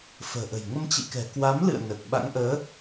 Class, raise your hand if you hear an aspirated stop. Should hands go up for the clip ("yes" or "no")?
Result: no